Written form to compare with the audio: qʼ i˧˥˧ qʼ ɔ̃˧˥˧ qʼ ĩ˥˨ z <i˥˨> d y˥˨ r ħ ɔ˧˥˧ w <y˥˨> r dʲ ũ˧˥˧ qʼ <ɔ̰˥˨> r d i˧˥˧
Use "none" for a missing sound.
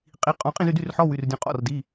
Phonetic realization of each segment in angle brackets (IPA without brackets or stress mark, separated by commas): y˥˨, y˧˥˧, ɔ̰˥˨